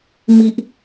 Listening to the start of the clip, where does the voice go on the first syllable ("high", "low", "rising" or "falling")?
high